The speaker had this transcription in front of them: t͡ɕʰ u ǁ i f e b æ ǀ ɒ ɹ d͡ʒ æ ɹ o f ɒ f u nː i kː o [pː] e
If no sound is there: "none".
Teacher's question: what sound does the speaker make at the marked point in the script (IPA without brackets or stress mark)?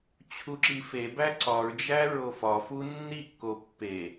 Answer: pː